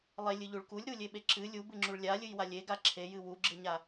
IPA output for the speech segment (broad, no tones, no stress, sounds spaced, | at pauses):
lˠ e lʲ ɨ ʎ u ɭ k u lʲ ɾ u lʲ e ɓ e ǁ ɨ lʲ u b ɨ ŋ͡ǁ u ɭ lʲ a lʲ ɨ j w a lʲ e ɡ a ǁʰ e j ɨ w u ɡ͡ǁ ɨ ɲ a